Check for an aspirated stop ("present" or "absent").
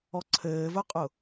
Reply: present